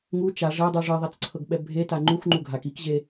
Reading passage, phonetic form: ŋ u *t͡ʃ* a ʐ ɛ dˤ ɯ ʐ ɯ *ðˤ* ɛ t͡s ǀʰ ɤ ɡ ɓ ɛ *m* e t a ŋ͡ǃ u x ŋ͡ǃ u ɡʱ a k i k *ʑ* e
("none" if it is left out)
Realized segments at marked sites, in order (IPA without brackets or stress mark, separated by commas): t͡ʃ, ðˤ, bʱ, ʑ